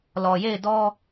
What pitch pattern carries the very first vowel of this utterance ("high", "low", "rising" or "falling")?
low